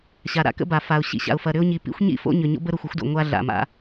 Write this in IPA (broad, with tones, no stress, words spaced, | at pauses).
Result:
ɕa˩ɾa̰˦ kə̰˦ba˩ fa˩ʊ̯ɕḭ˦ɕa̰˨ʊ̯fɐ˨ ɾʏ˦ʊ̯ɲi˨pḭ˥xʷ ɲḭ˥fo̰˦ ɲʏ˨ɲo̰˥b ə˥ɾo˨xʷə˥xʷdo̰˨ ŋʷa˦ ɮa̰˩ma̰˨